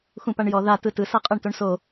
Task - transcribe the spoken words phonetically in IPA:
xũpaɳjɔ ða tɯtɯ sɤqʼɤɳtoɳso

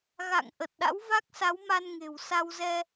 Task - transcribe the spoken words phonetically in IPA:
ɣa̰˧˨ŋ ʔə˨˩t̚ɗa̰˧˥wva˦˥k̚sa˨˦w ma˧nŋe̤˨˩wsa˧wzɛ˧

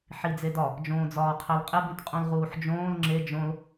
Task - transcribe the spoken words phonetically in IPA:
ħid͡zedɒ | d͡ʒõːd͡zɒːqʰælqʼeb ĩtqʼũlʁuːħd͡ʒõːl ŋ͡ǁe d͡ʒõl

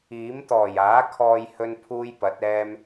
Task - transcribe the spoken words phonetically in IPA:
iː˨˥m t̪ɔː˨˩jaː˨˥kʰɔː˧j hɵ˥npʰuː˥j pɐ˨˥t̚ɛː˥m

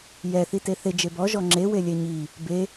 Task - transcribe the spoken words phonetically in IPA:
jɛ θiteθe d͡ʒebɔ ʒɔŋ͡ǁe welʲɛɲi | be

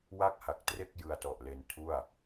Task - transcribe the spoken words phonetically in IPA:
wa˥˩k̚ha˨˩k̚tre˥˩k̚ jɯ˧a̯tɔ˨˩ʔle˧n tʰu˥˩a̯

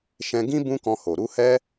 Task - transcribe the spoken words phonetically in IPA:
ʃɛ̃˧ ɡĩ˦ bũ˦kɔ̃˧ho˨ ɾu˧hɛ˦

